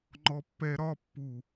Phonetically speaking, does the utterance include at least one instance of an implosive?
no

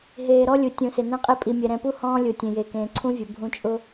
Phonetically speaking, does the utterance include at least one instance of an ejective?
yes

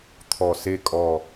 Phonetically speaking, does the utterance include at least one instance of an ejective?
yes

